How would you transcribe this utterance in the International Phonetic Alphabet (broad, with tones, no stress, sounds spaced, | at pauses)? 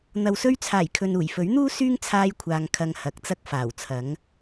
n̪ ɐ˨ w s ɵ˧ ɥ t͡sʰ aː˨˩ j kʰ ɵ˨ n uː˨˩ j f ɵ˨˥ ɥ n̪ uː˥ s yː˥ ŋ t͡sʰ aː˧ j kʷʰ aː˨ ŋ kʰ ɐ˧ ŋ h ɐ˨˥ k̚ t͡s ɐ˥ k̚ f aː˨˩ w t͡sʰ ɐ˨˥ ŋ